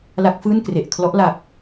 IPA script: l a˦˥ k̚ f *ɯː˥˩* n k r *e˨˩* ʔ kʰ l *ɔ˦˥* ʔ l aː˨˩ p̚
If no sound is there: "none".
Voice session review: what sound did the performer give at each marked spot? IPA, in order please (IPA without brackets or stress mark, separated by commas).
ɯː˥˩, e˨˩, ɔ˦˥